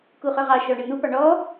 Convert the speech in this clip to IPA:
kuχœʁɑ ʃɔɳən̪u pɑɳɔ

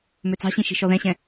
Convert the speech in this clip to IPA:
møt͡sɑ̤ɕĩ ʃi̤ʃɔðɛ̃ɕɛ̃

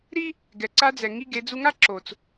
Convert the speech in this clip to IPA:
ɾi˥ | ɡɛ˩ǀa˧d͡zɛ˩ ŋi˧ɡe˩˧d͡zu˧ŋa˥ ǁo˩t͡s

